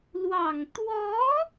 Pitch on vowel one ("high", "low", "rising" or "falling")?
low